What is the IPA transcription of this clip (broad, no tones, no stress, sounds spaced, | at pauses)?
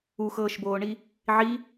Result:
u x ɤː ʃ b oː ɳ i | ʕ i